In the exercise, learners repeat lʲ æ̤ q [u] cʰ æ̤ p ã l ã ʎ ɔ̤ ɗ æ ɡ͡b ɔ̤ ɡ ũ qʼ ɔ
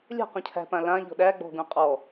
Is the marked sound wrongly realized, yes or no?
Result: yes